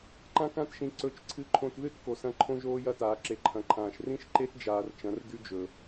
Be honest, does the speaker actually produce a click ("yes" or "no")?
yes